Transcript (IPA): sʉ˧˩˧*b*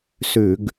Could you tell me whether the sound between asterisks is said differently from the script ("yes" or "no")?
yes